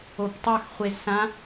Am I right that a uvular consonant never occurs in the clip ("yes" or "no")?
no